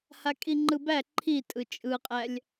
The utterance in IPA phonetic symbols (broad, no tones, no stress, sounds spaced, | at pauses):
h a kʼ i ŋ͡ǃ ɯ b æ ǃʰ i tʼ ɯ t͡ʃʼ ɯ qʼ æ lʲ